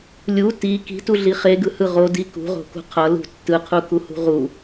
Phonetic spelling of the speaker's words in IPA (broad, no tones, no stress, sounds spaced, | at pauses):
lʲ u t i k i̤ t u ɮ i χ e ɡ ɯ h ɯ ʁ o d i k ṳ ʁ o̤ k ṳ qʰ ʌ l ṳ tː ɯ qʰ u k u h ṳ ʁ u